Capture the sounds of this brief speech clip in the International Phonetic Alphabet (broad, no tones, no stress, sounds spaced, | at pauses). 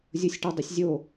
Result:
zʲ o sʲ ʈ ɔ dˤ ɵ sʲ zʲ o